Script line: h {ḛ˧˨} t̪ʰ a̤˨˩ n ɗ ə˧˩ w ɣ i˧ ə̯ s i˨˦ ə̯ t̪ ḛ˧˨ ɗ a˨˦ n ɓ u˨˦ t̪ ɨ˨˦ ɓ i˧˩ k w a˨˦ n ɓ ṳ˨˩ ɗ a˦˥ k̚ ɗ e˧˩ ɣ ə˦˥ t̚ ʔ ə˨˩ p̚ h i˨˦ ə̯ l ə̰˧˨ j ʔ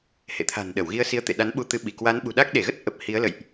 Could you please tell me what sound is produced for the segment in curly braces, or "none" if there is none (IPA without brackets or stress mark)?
ḛ˧˨